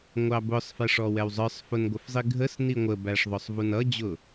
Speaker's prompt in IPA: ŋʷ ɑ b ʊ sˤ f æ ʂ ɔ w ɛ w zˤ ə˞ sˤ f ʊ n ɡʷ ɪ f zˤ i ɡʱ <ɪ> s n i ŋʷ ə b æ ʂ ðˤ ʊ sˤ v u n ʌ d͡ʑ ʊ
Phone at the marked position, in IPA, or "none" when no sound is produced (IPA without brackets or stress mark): ə